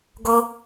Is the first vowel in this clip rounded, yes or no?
yes